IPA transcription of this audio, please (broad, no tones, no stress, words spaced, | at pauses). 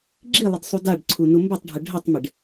ɡ͡ǁilˠɪd sˤudaɖǀʰu numbətˤɖʱə ɖʱətˤmɪɖ